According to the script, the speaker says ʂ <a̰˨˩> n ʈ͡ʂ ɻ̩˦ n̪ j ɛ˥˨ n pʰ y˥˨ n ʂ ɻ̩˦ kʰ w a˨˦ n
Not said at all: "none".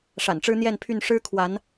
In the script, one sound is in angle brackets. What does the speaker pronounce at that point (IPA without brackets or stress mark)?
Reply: a̰˨˩